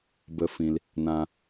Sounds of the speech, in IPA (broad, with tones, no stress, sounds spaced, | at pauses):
b ə˦ f ĩ˧ l | n ã˦